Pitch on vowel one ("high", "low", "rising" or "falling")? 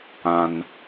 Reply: high